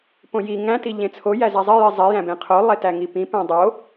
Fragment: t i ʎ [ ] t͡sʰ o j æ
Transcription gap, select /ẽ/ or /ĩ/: ẽ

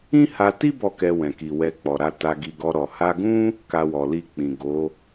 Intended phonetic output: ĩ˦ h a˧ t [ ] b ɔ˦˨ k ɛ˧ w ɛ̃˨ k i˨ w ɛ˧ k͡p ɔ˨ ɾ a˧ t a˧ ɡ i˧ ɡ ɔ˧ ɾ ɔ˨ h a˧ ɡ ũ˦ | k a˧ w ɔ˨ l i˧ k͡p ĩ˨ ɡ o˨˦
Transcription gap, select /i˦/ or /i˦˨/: i˦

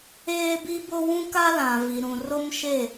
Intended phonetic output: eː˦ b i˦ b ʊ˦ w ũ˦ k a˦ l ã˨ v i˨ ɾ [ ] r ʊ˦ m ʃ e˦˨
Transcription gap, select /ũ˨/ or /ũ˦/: ũ˨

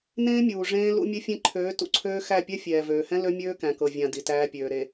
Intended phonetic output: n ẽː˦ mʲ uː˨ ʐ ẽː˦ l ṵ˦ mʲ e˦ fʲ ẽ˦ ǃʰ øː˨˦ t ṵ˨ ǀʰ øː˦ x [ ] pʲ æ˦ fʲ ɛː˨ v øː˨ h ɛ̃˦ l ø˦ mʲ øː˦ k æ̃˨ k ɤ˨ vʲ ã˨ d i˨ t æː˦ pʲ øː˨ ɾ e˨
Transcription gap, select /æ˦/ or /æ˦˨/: æ˦˨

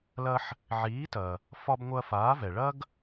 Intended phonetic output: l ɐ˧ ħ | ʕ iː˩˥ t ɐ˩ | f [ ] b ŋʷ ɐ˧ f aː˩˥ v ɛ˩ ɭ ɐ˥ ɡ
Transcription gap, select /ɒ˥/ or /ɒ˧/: ɒ˧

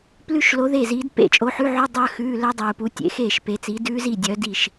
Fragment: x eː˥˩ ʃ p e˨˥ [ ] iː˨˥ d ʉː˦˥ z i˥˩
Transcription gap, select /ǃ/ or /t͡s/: t͡s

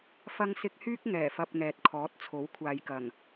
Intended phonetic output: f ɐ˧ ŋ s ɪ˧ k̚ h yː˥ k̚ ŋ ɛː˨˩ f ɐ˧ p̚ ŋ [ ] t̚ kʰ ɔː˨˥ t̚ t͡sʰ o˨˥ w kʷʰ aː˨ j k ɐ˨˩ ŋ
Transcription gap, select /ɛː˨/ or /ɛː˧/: ɛː˨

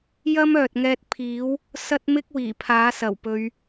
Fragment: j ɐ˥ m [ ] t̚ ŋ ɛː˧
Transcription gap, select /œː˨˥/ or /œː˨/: œː˨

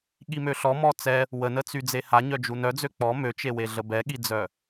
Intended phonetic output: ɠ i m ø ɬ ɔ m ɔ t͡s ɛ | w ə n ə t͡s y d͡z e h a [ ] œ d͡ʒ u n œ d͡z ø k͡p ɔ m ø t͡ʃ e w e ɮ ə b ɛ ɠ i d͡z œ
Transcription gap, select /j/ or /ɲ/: ɲ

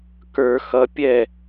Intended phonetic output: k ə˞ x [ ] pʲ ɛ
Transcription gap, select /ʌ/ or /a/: ʌ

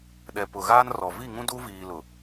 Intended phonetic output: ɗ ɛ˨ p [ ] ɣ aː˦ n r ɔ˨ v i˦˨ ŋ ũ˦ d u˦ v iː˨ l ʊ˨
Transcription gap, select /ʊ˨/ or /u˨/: ʊ˨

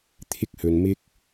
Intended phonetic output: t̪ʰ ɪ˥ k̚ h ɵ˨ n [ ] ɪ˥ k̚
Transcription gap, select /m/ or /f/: m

